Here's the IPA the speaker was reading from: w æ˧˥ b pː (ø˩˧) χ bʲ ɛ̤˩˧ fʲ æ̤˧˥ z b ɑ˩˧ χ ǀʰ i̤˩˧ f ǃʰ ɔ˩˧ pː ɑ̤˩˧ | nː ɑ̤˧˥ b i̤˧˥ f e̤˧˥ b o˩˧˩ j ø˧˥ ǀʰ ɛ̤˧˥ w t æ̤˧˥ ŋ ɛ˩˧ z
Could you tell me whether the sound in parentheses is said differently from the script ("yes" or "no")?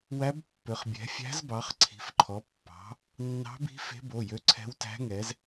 no